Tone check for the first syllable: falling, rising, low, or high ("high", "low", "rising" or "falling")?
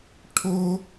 high